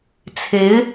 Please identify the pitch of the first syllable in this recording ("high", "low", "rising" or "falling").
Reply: rising